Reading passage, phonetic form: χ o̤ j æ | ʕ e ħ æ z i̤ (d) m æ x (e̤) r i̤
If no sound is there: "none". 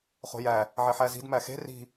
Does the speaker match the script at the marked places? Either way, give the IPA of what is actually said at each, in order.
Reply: d, e̤

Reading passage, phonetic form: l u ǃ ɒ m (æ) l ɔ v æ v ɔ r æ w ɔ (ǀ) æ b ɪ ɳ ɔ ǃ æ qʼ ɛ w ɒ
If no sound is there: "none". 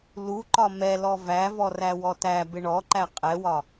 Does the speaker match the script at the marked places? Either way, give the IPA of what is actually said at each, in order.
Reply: ɛ, t

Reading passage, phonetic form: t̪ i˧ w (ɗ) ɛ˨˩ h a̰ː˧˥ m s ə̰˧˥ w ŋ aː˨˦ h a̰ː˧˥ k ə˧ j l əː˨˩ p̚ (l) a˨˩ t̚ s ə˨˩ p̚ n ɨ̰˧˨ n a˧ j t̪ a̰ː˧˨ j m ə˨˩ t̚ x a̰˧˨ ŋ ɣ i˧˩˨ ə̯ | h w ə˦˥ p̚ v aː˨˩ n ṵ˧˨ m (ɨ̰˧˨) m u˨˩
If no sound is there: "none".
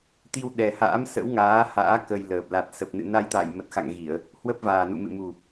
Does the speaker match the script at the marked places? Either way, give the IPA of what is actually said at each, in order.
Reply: ɗ, l, ɨ̰˧˨

